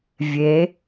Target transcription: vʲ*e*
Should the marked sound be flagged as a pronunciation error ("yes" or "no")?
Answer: no